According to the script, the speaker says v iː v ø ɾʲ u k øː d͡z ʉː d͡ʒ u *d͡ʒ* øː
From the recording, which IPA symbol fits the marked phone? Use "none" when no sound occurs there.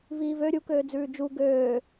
ɡ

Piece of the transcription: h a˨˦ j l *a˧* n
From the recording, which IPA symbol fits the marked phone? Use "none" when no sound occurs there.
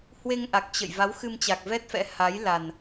a˨˩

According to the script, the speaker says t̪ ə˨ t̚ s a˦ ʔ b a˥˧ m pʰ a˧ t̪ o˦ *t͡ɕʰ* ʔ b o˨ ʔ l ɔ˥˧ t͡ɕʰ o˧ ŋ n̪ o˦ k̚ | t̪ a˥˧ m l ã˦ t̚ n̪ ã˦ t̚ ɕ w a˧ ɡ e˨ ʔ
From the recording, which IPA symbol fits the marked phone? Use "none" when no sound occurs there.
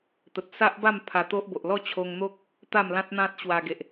none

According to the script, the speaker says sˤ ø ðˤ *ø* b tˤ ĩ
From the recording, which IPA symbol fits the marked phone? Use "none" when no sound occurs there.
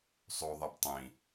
ɛ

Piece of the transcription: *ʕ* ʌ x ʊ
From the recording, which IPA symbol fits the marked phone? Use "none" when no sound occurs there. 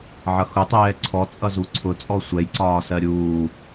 ʕ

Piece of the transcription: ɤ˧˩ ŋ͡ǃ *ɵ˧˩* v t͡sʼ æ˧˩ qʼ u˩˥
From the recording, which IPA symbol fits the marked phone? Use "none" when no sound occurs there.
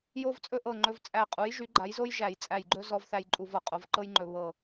ɵ˧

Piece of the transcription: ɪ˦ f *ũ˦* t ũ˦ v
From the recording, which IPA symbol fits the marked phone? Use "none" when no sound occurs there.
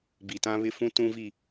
ũ˦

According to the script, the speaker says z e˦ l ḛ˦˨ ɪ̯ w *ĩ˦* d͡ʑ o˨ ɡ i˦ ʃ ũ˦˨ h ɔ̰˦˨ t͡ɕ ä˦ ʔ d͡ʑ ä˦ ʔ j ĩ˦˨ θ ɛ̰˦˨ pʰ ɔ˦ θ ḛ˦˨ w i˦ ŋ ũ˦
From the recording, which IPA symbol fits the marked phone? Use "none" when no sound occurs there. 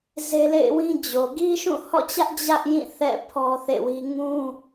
ĩ˦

